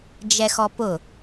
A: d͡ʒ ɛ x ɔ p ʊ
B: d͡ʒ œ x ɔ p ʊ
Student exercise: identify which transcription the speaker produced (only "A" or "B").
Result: A